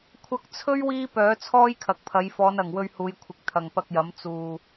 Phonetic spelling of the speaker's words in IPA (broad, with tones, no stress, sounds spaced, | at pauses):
kʷʰ ɐ˧ k̚ t͡sʰ ɵ˥ ɥ w iː˥ p œː˨˥ t͡sʰ ɔː˥ j kʰ ɐ˨ k̚ pʰ ɐ˨˧ j f ɔː˨˧ n ɐ˨˩ ŋ w ɵ˧ ɥ h uː˨˧ j kʷʰ ɪ˨ k̚ t̪ʰ ɐ˨ ŋ p ɐ˧ k̚ j ɐ˨˥ m t͡s uː˨